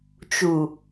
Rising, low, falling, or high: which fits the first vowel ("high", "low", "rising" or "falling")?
low